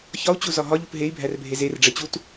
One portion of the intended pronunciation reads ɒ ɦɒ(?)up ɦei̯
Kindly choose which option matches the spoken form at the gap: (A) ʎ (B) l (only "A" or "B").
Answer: A